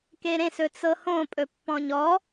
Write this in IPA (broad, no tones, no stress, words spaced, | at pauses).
keɾẽsɵt͡sɤ hõpʼɵ pːɔ̃ɲɔ